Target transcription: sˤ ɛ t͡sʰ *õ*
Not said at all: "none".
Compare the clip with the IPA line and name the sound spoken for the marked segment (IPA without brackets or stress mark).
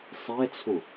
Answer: õ